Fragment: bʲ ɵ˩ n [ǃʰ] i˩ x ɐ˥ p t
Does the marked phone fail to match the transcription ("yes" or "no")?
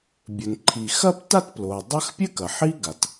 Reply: no